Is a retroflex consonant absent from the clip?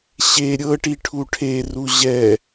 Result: no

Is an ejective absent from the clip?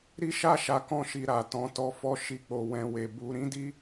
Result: yes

